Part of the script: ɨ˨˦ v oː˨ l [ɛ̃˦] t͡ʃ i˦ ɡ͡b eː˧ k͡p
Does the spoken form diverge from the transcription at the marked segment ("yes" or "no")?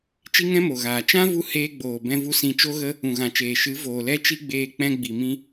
yes